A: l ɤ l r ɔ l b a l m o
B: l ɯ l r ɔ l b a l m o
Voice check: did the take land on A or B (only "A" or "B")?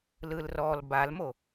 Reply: B